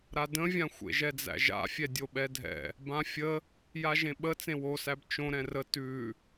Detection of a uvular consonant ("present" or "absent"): absent